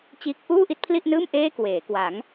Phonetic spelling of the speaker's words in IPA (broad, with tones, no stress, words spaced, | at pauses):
t͡ɕiː˦˥k̚ ʔuː˥˩ʔi˥˩t̚pʰli˥˩ʔnɯː˥˩m ʔeː˥˩kweː˩˦ kwa˩˦ŋ